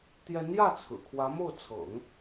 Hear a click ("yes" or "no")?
no